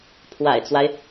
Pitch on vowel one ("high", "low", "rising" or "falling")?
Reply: low